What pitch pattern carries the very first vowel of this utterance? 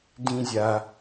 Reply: high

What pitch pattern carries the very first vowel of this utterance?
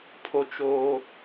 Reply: high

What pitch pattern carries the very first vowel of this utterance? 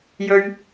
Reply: high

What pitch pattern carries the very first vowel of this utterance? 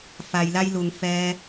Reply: low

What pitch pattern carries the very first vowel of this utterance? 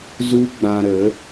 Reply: high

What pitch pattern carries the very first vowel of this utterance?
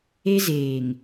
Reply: high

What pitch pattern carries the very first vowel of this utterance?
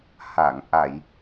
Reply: low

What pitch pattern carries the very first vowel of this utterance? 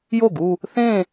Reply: falling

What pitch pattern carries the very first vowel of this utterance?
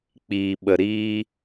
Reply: low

